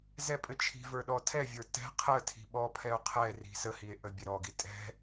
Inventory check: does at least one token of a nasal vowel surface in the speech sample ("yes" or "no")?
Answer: no